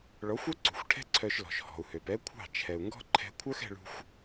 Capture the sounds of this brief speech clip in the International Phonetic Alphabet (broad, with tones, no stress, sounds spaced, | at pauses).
ɭ ɔ˨˦ xʷ œ˦ ǀ ṳ˨ xʷ ʈʰ ɛ̤˦ ǀʰ œ˧ ʃ l ɔ̤˨ ʃ h ɔ̤˨ u̯ h ø˨ p ɛ˦ kʷʰ ɑ̤˦˨ t͡ʃʰ ɛ˨ u̯ ŋ ɡ ɔ̤˦ ǃʰ ɛ̤˧ kʷʰ œ˦ x ɛ̤˧ ɭ ṳ˧ xʷ